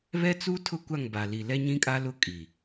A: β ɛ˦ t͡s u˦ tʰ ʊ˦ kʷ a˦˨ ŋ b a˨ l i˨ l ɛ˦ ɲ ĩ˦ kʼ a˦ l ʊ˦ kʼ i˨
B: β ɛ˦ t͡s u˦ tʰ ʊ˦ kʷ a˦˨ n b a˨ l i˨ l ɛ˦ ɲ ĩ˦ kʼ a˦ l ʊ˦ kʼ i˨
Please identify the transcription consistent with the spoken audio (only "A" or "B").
A